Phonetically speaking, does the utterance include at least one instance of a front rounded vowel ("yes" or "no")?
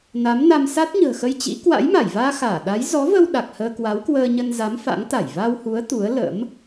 no